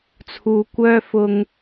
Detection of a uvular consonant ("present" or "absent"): absent